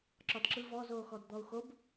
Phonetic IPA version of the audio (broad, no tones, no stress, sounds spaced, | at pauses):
ǁ ɒ d ǁ ɯ v ɔ z oː x ɔ d d̪ ɔ u̯ x o b